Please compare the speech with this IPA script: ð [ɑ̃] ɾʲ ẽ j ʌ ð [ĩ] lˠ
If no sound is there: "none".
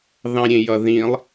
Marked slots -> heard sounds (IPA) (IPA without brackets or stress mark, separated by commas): ɑ̃, ĩ